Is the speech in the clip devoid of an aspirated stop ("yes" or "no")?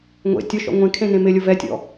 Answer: no